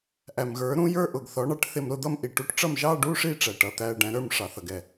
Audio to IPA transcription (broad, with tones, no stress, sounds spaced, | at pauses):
ʔ æ˨ m ɣ ə˞˩˥ ɾ ũ˧˥ j ə˞˧˥˧ ʔ ʊ˨ ɡ θ ɔ˩˥ ɳ ɑ˩˥ ʈ θ ɪ˥˧ m ɾ ʊ˥˧ d̪ ʌ˥˧ m ʔ i˨ ʈ u˧˥ ʈ ʈ͡ʂ ʌ˥˧ m ʒ ɑ˧˥˧ ɖ u˧˥˧ ʂ i˥˧ ʈ͡ʂ æ˨ ʈ ʌ˧˥˧ t̪ æ˧˥˧ ɖ æ̃˧˥ ɾ ə˞˥˧ m ʂ ɑ˨ θ ʌ˨ ɡ ɛ˨